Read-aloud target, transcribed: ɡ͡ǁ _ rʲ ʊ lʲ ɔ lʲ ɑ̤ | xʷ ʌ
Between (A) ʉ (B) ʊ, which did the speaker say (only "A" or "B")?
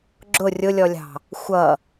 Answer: B